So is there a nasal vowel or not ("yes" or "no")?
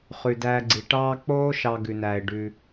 no